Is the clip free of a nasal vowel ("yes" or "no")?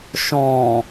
no